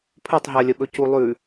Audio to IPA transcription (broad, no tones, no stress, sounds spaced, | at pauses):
pʰ ɵ tˤ ɦ ɜ lʲ ə ɓ ɵ c u lˠ ʉ